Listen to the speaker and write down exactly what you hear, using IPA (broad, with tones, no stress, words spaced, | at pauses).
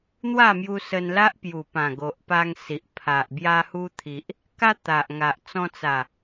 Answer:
n̪wa˥˧mju˧ sə˧nla˦ʔpju˨˩pã˨˩ ɡo˨ʔpa˧ŋ si˨ʔpʰa˨ʔ bja˧hu˧t̪ʰi˨ʔ | ka˦t̪a˨ʔ ŋa˨ʔt͡sɔ̃˧t͡sa˨˩